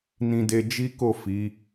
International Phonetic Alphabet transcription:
n ĩ˧ d e˧ d͡ʒ i˦ k o˦˨ f i˨˦

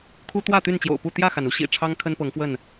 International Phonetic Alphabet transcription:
kʰ u˦ t̪ w ä˥˨ t̪ y˥˨ n t͡ɕ j o̰˨˩ ʊ̯ p u˥˨ t̪ j ä˥˨ x a˩ n u˦ ɕ ḭ˨˩ ʈ͡ʂʰ ɑ˦ ŋ kʰ ə˦ n p ɤ˨˦ ŋ f w ə˥˨ n

